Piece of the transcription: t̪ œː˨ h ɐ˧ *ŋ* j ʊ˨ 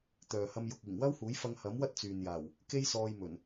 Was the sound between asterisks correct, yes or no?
no